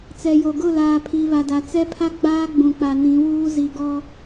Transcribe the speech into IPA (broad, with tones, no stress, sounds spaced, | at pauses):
t͡s ɛ˨ j o˨ ɡ ʊ˦˨ l aː˨ pʰ i˨ β a˨ d a˨ t͡s ɛ˦ pʰ a˦ ɡ͡b aː˦ ɡ͡b ũ˨ k͡p a˨ n ĩ˨˦ w uː˦ z i˨ ɡ ɔ˦